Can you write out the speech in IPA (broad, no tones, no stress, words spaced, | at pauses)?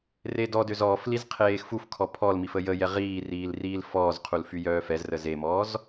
redɔdøz ɔːfliz qʰeːxfufkʰɔ pʰɔlmif əjəjɛ ʁiːriːl riːlfɔːzqʰul fyjœːfɛzrə zemɔːz